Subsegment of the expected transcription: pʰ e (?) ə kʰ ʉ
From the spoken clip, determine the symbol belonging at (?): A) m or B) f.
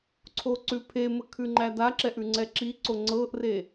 A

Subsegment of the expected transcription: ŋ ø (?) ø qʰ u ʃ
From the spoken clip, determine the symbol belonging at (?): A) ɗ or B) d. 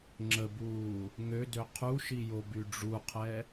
B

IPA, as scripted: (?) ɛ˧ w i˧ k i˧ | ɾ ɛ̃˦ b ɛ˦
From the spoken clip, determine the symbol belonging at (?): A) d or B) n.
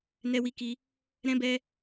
B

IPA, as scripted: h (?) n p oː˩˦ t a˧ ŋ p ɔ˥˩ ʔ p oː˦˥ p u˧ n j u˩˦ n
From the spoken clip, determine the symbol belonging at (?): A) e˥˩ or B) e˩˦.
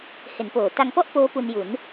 B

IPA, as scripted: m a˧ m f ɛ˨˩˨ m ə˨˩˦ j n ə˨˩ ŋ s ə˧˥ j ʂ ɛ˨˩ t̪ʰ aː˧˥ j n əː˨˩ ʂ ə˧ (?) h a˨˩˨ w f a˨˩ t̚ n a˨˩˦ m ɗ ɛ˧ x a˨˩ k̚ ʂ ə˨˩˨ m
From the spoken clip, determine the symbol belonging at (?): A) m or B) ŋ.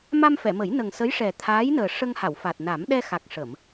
B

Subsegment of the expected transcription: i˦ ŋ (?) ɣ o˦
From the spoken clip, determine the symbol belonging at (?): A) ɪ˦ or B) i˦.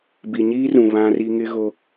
A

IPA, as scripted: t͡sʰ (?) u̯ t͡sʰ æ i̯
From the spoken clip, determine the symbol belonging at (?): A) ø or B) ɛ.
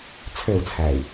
A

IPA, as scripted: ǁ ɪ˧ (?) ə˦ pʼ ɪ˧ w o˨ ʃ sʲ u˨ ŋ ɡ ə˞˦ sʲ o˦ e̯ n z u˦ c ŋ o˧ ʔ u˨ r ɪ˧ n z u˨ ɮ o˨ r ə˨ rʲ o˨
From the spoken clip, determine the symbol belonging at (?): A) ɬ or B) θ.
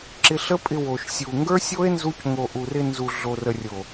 A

